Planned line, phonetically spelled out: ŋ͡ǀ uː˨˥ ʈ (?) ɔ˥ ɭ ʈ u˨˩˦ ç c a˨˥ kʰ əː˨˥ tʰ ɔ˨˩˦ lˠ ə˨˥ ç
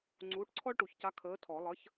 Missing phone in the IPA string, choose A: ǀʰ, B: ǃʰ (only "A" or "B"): A